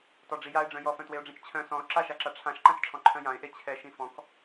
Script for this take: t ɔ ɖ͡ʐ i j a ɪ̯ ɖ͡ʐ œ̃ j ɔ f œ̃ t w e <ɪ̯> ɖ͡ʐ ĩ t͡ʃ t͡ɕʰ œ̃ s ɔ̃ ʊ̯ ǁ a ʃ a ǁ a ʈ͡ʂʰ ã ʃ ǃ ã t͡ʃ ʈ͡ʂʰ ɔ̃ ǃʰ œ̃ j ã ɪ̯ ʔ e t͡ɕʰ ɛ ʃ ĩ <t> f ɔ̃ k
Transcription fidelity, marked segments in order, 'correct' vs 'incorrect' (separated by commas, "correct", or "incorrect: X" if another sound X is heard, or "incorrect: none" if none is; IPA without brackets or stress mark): incorrect: ʊ̯, incorrect: none